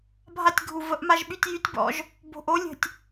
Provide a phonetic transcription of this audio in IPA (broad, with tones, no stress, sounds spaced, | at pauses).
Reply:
bʱ a˧ tʲ ɡʱ u˨ v ə˨˦ ʔ m a˧ ʒ ɓ y˧ tʲ j y˨˦ tʲ b ɔ̰˧ ʒ | b o̤˨ ʔ o˨˦ lʲ ə̤˨ tʲ